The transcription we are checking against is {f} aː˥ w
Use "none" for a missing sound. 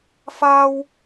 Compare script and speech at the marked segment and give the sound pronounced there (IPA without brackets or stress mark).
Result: f